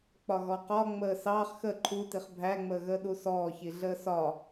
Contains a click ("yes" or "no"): yes